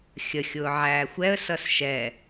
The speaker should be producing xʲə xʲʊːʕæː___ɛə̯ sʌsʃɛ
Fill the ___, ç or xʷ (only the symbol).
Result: xʷ